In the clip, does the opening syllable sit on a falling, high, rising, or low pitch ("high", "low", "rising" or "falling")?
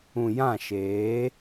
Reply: low